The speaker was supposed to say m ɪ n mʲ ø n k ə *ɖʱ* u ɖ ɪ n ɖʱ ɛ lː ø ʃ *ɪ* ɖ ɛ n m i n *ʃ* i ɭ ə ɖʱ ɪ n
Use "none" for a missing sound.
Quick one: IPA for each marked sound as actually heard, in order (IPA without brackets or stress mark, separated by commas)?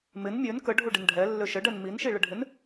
ɖʱ, ə, ʃ